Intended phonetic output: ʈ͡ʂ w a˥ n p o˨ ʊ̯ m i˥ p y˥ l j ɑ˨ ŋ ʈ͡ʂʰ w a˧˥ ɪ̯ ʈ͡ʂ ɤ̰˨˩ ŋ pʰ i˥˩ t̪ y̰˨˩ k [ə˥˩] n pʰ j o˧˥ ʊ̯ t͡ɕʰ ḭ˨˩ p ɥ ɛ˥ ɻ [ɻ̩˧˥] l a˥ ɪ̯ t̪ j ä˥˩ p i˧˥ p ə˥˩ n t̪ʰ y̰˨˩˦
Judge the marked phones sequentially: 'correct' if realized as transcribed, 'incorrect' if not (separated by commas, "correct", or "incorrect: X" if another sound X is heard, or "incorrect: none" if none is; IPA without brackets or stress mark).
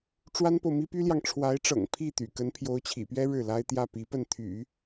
incorrect: ə˧˥, incorrect: ɻ̩˥˩